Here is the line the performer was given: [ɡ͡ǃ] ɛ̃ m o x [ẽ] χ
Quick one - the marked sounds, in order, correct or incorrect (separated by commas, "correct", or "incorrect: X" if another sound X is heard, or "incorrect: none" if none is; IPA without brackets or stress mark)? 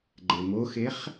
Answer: correct, incorrect: e